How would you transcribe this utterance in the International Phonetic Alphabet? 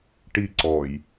ʈ i ǀ ɔ j

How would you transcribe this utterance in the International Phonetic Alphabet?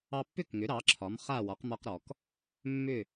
ɑ˧ pː ʏ˥˩ k ŋ ʏ˩˥ ɾ ɑ˩˥ ǁʰ ɒ˩˥ m χ a˥˩ w ɒ˩˥ q m ɒ˧ q ɾ ɔ˩ k | mː ʏ˥˩

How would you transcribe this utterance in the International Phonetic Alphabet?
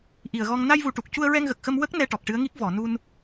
ʔ i˨˩ ə̯ ɣ ɔ˧ ŋ n a˧ j v u˨˩ ʈ u˨˩ k̚ c u˧ ə̯ ɹ ɛ˧ ŋ ɣ ə˨˩ k̚ x ə˧ m w ə˦˥ k̚ n ɛ˧ ʈ ɔ˨˩ k̚ ʈ ɨ˧˥ ə̯ ŋ i˦˥ k̚ v ɔ˨˩˨ n u˧ n

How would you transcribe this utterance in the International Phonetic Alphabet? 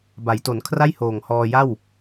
b a˩˦ j t o˩˦ n kʰ r a˥˩ j h oː˨˩ ŋ h ɔː˧ j a˥˩ w

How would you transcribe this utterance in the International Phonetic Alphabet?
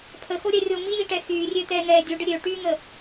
pʰ ə x o ɾʲ ɛ rʲ o m i j i ʈ ɛ x yː rʲ ø t̪ ɛː ŋ ɛː dʲ u ɖ ə ɾʲ ø ʈ yː ŋ ə

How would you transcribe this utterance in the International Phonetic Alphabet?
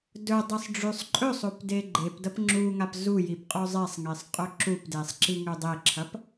d ɵ dˤ ɨ sˤ ɖ͡ʐ ʉ sˤ ǃʼ ɵ sˤ o p d e ɡ͡ǃ e p d ɐ p ŋ͡ǁ u ŋ a p z u j i p qʼ o zˤ e sˤ ŋ e sˤ qʼ ɵ ǁ u p d e sˤ ǁ i ŋ ʉ dˤ e ǁʰ ɐ p

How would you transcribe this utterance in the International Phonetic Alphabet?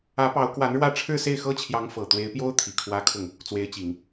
ä˧˥ p ɑ˧˥ ʊ̯ k w a˧˥ n ɻ w ä˥˧ ʈ͡ʂʰ ɻ̩˥˧ s e˥˩ ɪ̯ x ɤ˥ t͡ɕʰ j ɑ˧˥ ŋ f ɤ˨˩ t̪ w e˧˥ ɪ̯ p j o˥ ʊ̯ t̪ʰ i˨˩ kʰ w ä˥ kʰ ʊ˥˩ ŋ | t͡s w e˧˥ ɪ̯ t͡ɕ i˨˩˦ ŋ

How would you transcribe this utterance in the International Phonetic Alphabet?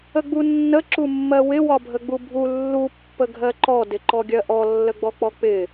ə ɡ͡b u nː ə ǁ u mː ɜ w ɪ w ɒ bʱ ə ɡ͡b u bʱ u lː u pː ə ɡʱ ɜ ǃ ɔ d ɪ ǃ ɔ ɡʲ ɜ ʔ ɔ lː ə ɡ͡b ɔ k͡p ɔ k͡p ɪ

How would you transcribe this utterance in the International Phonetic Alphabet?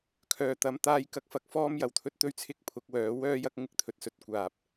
kʰ œː˨ t̪ ɐ˧ m t̪ aː˥ j k ɐ˥ k̚ f ɐ˨˥ k̚ f ɔː˥ m j ɐ˨˩ w t̪ʰ ɵ˥ t̚ t̪ ɵ˥ ɥ t͡sʰ ɪ˥ k̚ pʰ ʊ˨˥ k̚ w œː˨˥ w œː˥ j ɐ˥ k̚ ŋ ɪ˨ k̚ t̪ʰ ɵ˧ t̚ s ɵ˧ t̚ kʷ aː˨ p̚

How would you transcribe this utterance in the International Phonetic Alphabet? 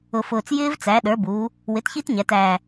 ʊ˨˩ f ʊː˨˩ t͡s j ɪː˦˥ v t͡s æ˩˥ ɗ ə˞˩˥ b uː˩˧ | w ɪ˩˥ t ç i˦˥ t ɲ æ˩˧ t æː˨˩

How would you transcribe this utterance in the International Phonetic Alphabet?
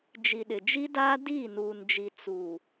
d͡ʒ i˨ ɗ ɪ˨ d͡ʒ i˦ d aː˦ d iː˦˨ n uː˨ n d͡ʒ i˨ t͡s u˨

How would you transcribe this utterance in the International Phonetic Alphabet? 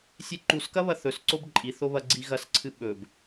sʲ e ǃ u s k ɐ β ɐ θ ɵ s ǀ o b ǃʼ i θ o β ɐ ɡ͡ǀ i ɣ ɐ s ǀʰ ɨ ɓ ɵ b

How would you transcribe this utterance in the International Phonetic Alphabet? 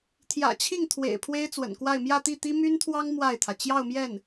t̪ʰ j ä̰˨˩ t͡ɕʰ i˥˩ ŋ t̪ʰ w ḛ˨˩ ɪ̯ pʰ w e˥ ɪ̯ t͡s w ə̰˨˩ n k w a˥˧ ɪ̯ m j ä˥˧ t̪ i˥˩ t̪ i˥ m y˥ n t̪ʰ w ɑ˥ ŋ m w a˥˩ ɪ̯ t̪ʰ ä˩ t͡ɕ j ɑ˥˧ ʊ̯ m j ɛ˥˩ n

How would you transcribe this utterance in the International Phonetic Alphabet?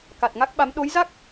k a˨˩ t̚ ŋ a˦˥ k̚ ɓ a˨˦ m ɗ o˨˦ j z a˦˥ k̚

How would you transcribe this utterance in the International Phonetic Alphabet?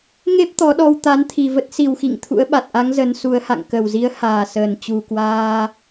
ŋ e˦˥ p̚ t̪ ɔ˨˦ ɗ ɔ˧ w t̪ a˨˦ n t̪ʰ i˨˩ v ə˦˥ t̚ s i˨˩ w x ḭ˧˨ ŋ t̪ʰ ṵ˧˥ ə̯ ɓ a˨˩ t̚ ʔ a˨˦ ŋ z ə˨˦ n s u˨˦ ə̯ h a̰˧˨ ŋ k ə˨˩ w z i˨˦ ə̯ h aː˨˩ s əː˨˩ n t͡ɕ u˨˩ k w aː˧

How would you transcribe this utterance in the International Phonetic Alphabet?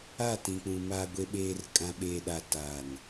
a˦˨ t ĩ˨ k͡p ũ˨ m aː˨ ɡʷ e˨ ɓ eː˨ r kʼ ã˨ ɓ eː˨ ɗ a˨ t aː˨ n

